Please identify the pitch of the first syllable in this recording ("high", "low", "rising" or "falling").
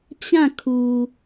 falling